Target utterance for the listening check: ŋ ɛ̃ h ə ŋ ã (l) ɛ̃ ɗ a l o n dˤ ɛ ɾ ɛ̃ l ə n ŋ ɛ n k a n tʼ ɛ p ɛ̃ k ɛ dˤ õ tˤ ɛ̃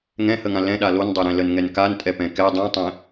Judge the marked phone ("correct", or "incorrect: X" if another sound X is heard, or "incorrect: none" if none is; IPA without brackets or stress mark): correct